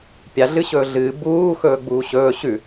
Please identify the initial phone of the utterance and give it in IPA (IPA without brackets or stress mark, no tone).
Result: pʲ